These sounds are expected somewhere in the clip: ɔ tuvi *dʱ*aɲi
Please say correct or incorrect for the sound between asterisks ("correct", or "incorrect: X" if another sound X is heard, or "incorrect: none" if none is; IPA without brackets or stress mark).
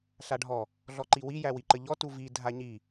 correct